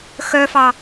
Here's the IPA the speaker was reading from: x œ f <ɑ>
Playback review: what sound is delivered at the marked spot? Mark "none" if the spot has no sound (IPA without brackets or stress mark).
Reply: ɑ